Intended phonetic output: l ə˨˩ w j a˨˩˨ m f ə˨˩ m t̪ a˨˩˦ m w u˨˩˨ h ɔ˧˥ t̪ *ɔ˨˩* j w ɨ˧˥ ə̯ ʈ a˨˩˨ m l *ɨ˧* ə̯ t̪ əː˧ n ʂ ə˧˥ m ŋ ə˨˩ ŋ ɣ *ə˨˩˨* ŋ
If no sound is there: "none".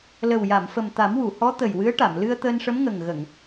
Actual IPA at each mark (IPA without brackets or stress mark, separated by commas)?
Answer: ə˨˩, ɨ˧, ə˨˩˨